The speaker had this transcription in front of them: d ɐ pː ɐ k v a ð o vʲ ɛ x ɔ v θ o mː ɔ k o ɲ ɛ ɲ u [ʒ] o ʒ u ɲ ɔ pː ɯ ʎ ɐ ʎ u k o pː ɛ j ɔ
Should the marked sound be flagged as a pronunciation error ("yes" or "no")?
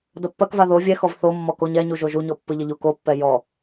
no